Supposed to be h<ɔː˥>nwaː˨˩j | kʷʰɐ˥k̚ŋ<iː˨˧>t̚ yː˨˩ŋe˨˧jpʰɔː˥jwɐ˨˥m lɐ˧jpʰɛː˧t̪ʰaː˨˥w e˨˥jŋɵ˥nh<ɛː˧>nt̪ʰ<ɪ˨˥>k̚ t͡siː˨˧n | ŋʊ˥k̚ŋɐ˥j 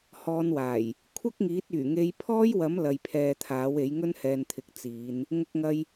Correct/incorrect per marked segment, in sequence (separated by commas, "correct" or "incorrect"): incorrect, incorrect, correct, correct